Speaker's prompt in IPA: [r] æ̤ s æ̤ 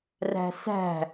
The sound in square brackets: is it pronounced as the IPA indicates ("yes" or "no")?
yes